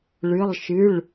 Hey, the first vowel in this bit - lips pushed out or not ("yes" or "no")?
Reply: no